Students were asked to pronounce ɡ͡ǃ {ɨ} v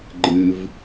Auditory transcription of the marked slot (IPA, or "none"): ɨ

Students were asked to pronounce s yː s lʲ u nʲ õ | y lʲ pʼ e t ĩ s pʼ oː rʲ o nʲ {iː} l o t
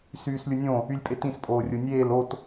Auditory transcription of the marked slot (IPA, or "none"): eː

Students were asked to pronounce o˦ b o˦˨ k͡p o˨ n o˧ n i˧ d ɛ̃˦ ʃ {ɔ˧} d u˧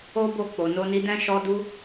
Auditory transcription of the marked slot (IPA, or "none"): ɔ˧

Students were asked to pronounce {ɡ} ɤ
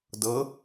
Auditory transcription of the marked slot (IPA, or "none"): d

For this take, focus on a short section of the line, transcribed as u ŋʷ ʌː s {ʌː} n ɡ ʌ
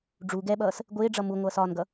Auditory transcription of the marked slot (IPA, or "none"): ɒː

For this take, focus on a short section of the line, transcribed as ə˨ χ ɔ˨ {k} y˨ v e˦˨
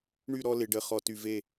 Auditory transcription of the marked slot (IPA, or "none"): t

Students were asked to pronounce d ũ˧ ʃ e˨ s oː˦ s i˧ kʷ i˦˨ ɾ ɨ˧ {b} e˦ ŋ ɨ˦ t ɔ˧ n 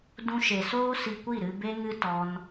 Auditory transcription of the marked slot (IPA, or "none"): b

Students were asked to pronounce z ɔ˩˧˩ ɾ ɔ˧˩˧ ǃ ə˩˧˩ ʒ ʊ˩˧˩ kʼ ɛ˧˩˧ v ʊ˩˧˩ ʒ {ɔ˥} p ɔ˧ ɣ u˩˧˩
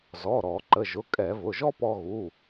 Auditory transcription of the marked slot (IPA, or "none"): ɔ˥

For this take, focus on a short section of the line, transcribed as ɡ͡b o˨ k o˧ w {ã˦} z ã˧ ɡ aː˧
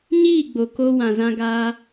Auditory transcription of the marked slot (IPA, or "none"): ã˨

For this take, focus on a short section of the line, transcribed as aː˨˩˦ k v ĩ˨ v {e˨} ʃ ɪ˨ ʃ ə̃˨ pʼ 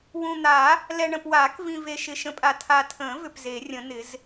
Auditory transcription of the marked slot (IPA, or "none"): e˨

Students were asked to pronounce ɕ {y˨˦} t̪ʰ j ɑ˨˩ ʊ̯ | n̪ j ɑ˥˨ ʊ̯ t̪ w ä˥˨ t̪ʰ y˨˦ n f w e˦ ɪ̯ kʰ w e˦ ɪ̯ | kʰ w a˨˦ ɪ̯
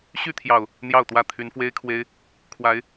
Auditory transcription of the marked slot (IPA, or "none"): y˥˨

